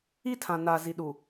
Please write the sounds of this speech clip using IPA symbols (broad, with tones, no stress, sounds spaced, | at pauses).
i˦ tʰ ã˨ n a˨ z i˨ ɗ u˨